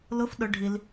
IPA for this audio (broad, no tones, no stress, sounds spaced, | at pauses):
l ʊ f ɗ ʊ ɖʱ i l